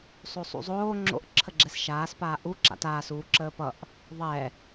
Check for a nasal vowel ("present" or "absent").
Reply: absent